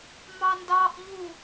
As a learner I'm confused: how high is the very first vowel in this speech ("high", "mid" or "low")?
low